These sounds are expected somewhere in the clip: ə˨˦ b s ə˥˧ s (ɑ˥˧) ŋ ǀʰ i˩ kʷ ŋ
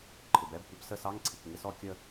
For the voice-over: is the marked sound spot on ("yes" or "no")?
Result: no